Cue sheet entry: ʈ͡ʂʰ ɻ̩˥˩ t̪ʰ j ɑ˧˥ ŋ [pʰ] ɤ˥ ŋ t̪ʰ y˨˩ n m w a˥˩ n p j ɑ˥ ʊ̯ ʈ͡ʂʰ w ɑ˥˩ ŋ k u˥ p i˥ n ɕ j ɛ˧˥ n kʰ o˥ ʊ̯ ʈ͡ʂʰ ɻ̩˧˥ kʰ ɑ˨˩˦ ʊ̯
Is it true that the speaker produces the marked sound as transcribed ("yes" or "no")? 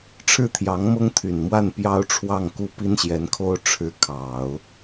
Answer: no